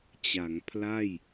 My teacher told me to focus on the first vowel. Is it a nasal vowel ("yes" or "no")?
no